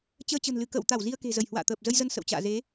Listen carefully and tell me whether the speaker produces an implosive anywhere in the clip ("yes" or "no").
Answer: no